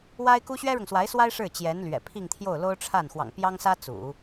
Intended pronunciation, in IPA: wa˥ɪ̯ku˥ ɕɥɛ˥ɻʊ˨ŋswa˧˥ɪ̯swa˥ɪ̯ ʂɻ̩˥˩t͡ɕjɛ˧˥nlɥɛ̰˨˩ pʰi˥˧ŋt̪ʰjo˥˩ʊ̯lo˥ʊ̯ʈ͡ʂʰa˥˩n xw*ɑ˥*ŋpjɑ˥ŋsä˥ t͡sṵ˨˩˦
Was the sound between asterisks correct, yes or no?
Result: no